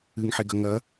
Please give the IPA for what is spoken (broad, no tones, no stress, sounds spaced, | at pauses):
ɨ ŋ ħ e ɡ ɐ ŋ ɐ